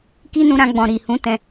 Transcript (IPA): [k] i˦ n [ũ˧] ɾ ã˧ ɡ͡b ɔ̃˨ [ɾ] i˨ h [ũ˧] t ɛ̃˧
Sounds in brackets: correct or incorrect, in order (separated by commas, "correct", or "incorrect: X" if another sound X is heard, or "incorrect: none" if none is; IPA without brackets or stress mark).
correct, correct, correct, incorrect: ũ˨˦